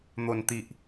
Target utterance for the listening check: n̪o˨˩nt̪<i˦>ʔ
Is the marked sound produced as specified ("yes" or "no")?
no